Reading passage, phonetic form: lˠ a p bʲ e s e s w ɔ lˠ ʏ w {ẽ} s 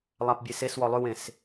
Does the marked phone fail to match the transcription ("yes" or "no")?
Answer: no